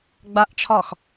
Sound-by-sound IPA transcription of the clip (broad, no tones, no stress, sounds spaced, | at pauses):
ɡ͡b a ʔ t͡ʃʰ ɒ x